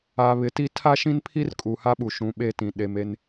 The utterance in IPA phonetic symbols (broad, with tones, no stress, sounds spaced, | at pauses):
a˨ β ɪ˨ t i˦ tʰ a˦ ʃ ĩ˦ n pʰ i˦ r kʼ u˨ h a˦ ɓ u˨ ʃ ũ˨˦ ɓ e˦ t ĩ˨ ɗ e˨ m e˦ n